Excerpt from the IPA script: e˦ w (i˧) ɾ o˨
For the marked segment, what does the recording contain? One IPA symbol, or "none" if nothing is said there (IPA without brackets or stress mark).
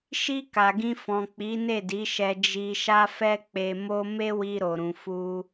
i˧